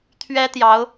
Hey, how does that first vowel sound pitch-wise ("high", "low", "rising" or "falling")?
high